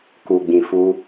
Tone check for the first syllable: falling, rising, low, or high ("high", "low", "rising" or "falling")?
low